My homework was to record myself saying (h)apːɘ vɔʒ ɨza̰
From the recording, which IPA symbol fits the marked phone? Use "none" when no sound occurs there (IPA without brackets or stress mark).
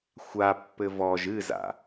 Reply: xʷ